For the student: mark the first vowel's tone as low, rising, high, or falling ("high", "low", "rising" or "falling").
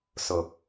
low